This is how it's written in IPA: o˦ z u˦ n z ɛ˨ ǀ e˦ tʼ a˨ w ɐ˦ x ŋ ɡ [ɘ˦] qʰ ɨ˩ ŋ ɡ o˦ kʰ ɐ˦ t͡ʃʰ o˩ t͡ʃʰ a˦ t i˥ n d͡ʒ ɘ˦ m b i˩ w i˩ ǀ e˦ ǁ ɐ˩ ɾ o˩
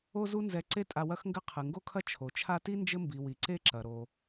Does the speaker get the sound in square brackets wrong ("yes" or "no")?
no